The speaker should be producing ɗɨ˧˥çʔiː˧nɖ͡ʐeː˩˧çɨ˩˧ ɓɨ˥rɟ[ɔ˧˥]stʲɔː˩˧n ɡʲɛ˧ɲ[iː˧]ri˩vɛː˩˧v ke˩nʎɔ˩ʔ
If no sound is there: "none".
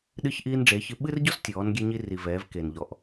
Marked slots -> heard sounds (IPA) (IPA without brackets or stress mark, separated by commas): ɔ˥, i˧